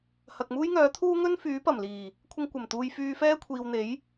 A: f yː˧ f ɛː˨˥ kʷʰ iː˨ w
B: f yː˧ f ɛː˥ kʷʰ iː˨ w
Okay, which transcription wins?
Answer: B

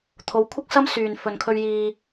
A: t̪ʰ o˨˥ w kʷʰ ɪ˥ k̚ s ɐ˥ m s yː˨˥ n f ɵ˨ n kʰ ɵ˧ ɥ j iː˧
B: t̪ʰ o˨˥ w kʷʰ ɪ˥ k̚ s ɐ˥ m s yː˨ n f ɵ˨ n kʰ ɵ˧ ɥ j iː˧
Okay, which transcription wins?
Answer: B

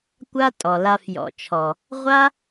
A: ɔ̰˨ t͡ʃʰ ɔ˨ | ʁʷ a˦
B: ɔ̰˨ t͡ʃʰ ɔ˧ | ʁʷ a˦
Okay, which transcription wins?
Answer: A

